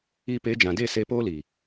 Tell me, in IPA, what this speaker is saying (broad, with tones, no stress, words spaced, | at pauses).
i˧pe˨˦d͡ʒã˨de˦˨ se˧poː˦li˨